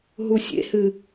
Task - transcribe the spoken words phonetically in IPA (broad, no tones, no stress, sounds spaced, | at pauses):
ɦ u sʲ ḛ h ɨ